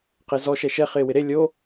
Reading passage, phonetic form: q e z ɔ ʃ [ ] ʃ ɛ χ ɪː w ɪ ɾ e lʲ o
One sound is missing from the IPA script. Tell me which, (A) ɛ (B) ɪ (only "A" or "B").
A